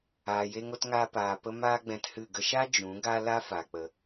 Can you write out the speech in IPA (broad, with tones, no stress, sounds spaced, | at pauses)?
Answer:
aː˨ j e˧ ŋ o˧ t ŋ aː˧ p aː˨ p ə˧ m aː˦ ɡ͡b ɛ̃˧ t h ɨ˦˨ ɡ ə˧ ʃ a˦ d͡ʒ ũ˨˦ ɡ a˦ l a˦ f a˨ k͡p ə˨